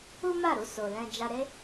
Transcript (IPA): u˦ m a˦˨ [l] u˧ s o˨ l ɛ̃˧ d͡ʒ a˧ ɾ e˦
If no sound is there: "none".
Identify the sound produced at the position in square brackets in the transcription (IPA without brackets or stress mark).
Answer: ɾ